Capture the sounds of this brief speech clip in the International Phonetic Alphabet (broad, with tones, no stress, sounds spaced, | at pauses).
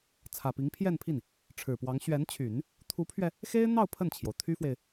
t͡sʰ ä˨˩ p i˧˥ ŋ pʰ j ɛ˥˧ n pʰ i˥˩ n | ʈ͡ʂʰ ɻ̩˨˩ p w ɑ˧˥ ŋ ɕ ɥ ɛ˧˥ n t͡ɕʰ y˨˩˦ n | t̪ʰ u˧˥ pʰ ɥ ɛ˧ | x e˥ ɪ̯ n̪ ɑ˥˧ ʊ̯ pʰ ə˥˩ n t͡ɕʰ j o˩ ʊ̯ t̪ʰ y˥ f w e˨ ɪ̯